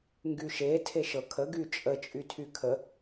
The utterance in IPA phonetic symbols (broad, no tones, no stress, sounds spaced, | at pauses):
ŋ ɡ y ʃ e tʰ e ʃ ɤ kʰ ə ɡ y t͡ʃʼ ə t͡ʃʼ y tʰ y kʰ ə